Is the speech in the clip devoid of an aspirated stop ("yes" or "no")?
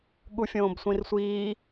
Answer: yes